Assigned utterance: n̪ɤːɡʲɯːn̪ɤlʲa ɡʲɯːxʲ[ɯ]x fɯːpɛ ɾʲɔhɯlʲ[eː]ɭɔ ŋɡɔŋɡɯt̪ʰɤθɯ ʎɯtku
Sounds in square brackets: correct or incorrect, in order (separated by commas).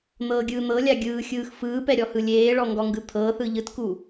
incorrect, correct